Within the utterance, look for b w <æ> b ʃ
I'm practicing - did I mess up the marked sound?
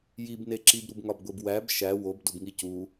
no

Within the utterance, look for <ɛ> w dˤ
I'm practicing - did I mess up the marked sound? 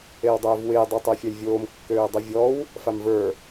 yes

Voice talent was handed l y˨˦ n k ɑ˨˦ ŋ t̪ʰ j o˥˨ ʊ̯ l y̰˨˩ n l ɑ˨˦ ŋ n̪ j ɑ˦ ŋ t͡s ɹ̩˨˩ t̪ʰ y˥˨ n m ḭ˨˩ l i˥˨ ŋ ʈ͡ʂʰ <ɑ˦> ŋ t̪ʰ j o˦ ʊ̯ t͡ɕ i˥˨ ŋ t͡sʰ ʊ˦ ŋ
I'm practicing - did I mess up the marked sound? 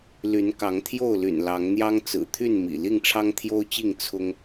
no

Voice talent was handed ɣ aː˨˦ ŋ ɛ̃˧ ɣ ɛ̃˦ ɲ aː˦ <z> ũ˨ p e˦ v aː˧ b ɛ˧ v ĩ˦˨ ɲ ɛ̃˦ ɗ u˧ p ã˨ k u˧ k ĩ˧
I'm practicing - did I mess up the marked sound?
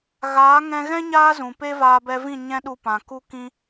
no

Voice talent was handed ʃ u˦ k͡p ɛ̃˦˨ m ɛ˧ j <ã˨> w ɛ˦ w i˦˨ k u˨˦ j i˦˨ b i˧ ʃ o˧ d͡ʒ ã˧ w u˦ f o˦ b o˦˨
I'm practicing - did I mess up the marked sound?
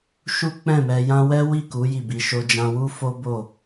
yes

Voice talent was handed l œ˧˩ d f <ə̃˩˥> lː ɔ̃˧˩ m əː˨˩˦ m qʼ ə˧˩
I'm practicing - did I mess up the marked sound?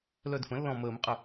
no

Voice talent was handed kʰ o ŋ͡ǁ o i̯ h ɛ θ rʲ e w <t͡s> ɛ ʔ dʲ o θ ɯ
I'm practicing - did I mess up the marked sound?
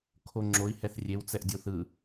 no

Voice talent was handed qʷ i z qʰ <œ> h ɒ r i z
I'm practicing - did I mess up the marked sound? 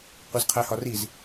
yes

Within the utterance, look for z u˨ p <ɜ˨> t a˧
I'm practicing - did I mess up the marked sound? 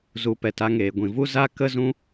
yes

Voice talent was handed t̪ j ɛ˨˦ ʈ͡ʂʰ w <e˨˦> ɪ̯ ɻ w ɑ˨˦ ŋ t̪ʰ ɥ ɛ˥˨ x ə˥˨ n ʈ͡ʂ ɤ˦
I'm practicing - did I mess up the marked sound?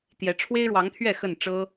yes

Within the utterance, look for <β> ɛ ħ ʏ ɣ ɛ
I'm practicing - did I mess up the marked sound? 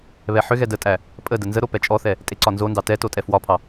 no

